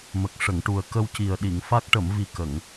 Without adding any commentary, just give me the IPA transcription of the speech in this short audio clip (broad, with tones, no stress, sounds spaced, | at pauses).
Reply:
m ə˨˩ k̚ ʂ ə˨˩˨ ŋ ʈ u˨˩ ə̯ k ə˧ w c i˨˩ ə̯ ɗ i˨˩˨ ŋ f a˦˥ k̚ ʈ ə˨˩˨ m v i˨˩ k ə˨˩˨ ŋ